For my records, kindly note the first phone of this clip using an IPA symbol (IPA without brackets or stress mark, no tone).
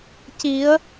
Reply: c